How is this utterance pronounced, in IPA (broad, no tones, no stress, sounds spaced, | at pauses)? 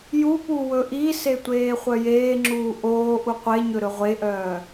j u p u w ɵ ʔ i s e tʷ eː χʷ œ j eː ŋ͡ǁ uː ʔ oː ʔ u qʷ e ɲ ɵ ɾ ɵ ʁʷ e ʔ œː